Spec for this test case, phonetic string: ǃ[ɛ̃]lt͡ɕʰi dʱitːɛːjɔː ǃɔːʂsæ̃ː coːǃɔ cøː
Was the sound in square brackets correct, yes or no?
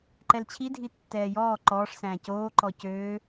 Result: no